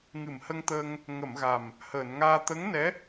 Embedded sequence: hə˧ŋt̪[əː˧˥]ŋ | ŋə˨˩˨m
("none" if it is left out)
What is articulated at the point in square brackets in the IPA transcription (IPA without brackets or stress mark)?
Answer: əː˧